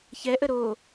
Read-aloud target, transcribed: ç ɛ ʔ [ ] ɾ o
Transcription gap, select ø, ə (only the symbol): ə